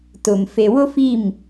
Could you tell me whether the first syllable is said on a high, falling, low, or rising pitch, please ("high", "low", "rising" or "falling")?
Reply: low